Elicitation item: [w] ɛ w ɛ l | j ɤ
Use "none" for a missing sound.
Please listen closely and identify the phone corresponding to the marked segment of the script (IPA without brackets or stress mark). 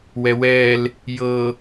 w